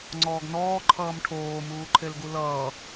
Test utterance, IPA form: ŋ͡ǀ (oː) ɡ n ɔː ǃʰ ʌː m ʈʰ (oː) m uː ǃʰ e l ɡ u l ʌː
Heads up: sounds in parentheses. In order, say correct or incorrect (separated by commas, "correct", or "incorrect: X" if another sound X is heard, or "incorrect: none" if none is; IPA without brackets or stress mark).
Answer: incorrect: ɔː, correct